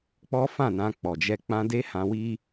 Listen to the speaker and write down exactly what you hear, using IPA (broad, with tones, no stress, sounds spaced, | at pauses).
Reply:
k͡p ɔ˦ f ã˦˨ n ã˧ k͡p ɔ˨ d͡ʒ ɛ˧ k͡p ã˧ d e˦ h ã˧ w i˦